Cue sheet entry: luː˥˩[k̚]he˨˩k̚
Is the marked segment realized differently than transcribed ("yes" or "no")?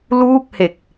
no